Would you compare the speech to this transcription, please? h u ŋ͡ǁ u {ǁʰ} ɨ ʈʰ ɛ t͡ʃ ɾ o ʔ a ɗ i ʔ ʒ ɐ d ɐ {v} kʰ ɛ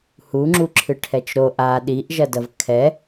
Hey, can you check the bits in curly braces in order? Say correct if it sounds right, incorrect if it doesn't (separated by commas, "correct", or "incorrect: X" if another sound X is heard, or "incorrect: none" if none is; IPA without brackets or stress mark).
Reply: correct, correct